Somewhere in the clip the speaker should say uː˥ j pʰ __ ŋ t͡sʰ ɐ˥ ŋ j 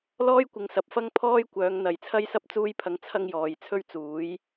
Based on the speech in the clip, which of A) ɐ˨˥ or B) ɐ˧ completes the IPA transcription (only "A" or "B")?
B